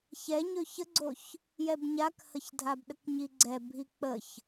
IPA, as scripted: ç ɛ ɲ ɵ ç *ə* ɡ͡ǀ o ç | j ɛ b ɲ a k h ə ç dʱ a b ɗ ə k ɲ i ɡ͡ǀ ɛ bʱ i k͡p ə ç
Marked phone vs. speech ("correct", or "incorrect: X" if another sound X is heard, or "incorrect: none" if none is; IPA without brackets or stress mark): correct